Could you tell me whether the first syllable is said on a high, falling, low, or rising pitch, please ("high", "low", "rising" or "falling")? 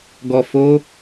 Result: low